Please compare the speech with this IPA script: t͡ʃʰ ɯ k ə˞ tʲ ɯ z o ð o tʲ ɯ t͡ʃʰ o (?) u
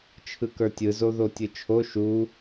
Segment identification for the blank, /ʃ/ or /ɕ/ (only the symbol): ʃ